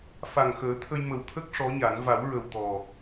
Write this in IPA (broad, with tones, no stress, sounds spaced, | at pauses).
f a˨˩ ŋ x əː˨˩˦ t̪ʰ ə˧ j m ə˨˩ w t̪ʰ ə˦˥ k̚ ʂ ɔ˧˥ ɲ a˨˩˦ n v a˨˩˦ w ɹ ə˨˩ w t̪ ɔ˨˩